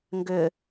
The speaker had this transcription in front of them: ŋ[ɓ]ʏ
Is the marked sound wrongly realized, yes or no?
yes